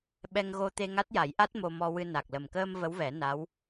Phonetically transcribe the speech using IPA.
ɓ ɛ˧ ŋ ɣ o˧ t̪ e˧ ŋ a˦˥ t̚ j a˨˩˦ j ʔ a˦˥ t̚ m o˧ m ɔ˧ w ɨ˧ n a˨˩ k̚ l ə˨˩ m k əː˧ m v ə˧˥ w v ɛ˨˩˦ n a˧˥ w

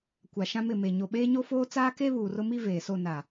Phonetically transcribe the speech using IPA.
kʷ a˨ ʃ ã˦ m ɪ˦˨ m e˨ ɲ o˨ ɓ eː˦ ɲ o˦ f oː˦ t͡s aː˦ k e˦ β uː˨ r ʊ˦ m i˦ v eː˨ s o˦˨ n a˨

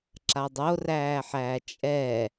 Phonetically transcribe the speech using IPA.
ǁ a dˤ o r æː ħ æː t͡ʃʼ ɛ

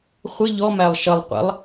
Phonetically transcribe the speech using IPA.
χʷ ɪ ʎ ɔ m æ lˠ ʃ ʌ lˠ qʷ ə̰ lˠ

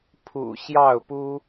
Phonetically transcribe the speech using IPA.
pʰ ṵ˨˩ ɕ j ɑ˥˩ ʊ̯ p u˥

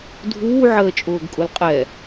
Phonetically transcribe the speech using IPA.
dʱ uː ʕ əː t͡ʃʼ ʊː ɡ kʼ ʊ l qʼ ɛ

